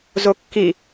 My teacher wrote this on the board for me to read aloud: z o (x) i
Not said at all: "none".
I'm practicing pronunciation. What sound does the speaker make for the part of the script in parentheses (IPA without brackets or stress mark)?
kː